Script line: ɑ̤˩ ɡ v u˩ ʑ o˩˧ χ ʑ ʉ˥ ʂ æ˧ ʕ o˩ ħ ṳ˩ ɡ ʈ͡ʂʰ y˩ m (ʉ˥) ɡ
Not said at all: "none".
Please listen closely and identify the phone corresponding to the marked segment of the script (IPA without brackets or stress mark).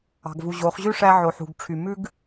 ʉ˥